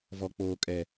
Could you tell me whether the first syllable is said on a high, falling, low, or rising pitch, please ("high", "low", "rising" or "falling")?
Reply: low